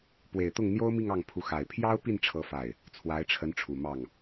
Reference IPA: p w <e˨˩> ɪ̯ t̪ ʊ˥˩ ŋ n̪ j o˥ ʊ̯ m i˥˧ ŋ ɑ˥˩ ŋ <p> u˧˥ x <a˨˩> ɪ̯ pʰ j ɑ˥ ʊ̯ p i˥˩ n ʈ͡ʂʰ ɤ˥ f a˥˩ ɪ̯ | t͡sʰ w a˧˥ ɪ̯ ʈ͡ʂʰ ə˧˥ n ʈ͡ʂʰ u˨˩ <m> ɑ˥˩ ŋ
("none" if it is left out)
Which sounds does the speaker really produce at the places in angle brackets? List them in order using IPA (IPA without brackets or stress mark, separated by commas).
e˨˩, pʰ, a˨˩, m